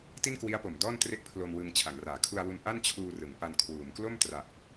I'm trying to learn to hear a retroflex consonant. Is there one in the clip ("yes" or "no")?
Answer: no